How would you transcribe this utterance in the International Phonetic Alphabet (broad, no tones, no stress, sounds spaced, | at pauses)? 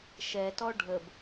ʃ ɛ t ɔ ɖʱ ə b